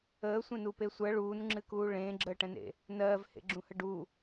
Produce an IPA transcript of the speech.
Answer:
əːsʷẽnupe sʷɜ ɭuːnŋ͡ǁɨkuː ɭẽːɡ͡ǁəːʈɛ̃nḛ | nɜːvhḛɡ͡ǁũhə ɖu

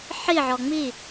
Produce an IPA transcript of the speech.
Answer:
ħi ʕɔŋ͡mi

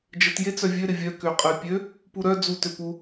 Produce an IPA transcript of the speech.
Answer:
d͡ʒət jet͡sœvʲø ɾɪvʲœ køqʼəy̯pʲø | puɾœ d͡zu tøpu

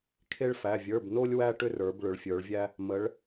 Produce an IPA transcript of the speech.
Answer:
kʰe˦ɭfæ˩˧˩ vʲə˞˩˧˩bno˦lʲ wæ˦ʈʏ˦rə˞˩˧b ɭʏ˩˧ɭfʲə˞˩˧ɭ vʲæ˦ | mə˩˧ɭ

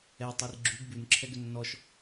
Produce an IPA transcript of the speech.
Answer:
ɛtˤir ɡ͡ǁʉɡ bʉnǁʰɛɡ ʏnːɔʃ

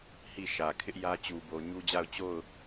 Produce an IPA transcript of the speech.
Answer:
hi˦˨ʃä˨ kʰɪ˦ʔjä˦t͡ɕu˨bo˨ ɲu˦d͡ʑa˦˨ʊ̯ t͡ɕo˦˨ʊ̯

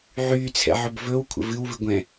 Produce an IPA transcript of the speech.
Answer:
ʕyːt͡sʰɛ̰ʕɵb vɵwkʷʰə̰ vɨwvɨɡʷɛ̃

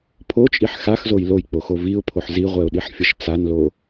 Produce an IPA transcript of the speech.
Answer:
pʰot͡ʃʼiħ xaxzoj lojk͡poxo viʊ̯pʰoħ ziʁʷɛʊ̯ɗiħfʲʌʃ t͡sanlo

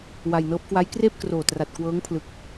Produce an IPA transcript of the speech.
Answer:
wa˧jnɤː˦˥p̚ kwa˦˥jkreː˥˩p̚kroː˨˩tra˨˩t̚ kwɤː˦˥ŋpʰlɯ˨˩k̚

